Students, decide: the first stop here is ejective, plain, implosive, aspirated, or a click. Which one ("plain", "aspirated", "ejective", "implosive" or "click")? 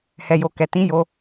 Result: plain